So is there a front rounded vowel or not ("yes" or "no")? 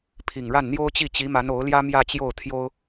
no